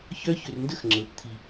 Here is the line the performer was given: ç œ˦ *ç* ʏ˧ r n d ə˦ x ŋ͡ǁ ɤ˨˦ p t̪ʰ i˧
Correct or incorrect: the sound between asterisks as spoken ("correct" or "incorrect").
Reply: correct